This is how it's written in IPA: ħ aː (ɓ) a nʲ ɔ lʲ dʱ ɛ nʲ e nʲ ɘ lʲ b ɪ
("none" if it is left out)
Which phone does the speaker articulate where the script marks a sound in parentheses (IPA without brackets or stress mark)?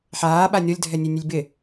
ɓ